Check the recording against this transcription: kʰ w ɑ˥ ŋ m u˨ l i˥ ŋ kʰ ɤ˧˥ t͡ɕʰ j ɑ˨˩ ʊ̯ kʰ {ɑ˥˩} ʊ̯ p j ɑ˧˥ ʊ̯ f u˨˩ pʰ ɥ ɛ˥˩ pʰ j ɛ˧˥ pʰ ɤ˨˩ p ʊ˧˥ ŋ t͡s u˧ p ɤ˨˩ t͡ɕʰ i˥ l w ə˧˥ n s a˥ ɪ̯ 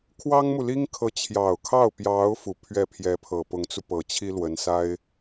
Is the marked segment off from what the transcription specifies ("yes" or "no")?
no